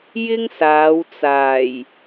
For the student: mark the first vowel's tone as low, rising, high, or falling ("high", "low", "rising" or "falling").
high